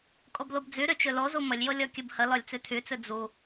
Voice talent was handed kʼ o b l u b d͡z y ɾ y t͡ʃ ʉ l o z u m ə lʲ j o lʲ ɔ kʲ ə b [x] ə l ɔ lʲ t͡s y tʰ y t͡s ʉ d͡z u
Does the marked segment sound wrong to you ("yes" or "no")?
yes